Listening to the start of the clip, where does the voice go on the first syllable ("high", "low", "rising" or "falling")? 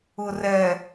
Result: low